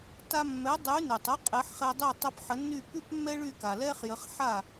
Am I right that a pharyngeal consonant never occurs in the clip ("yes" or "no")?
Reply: no